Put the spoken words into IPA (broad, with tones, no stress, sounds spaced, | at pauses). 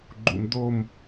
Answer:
ɡ͡ǃ ṵ˧ m d̪ o˥˧ m